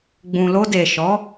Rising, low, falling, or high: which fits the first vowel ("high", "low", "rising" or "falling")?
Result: low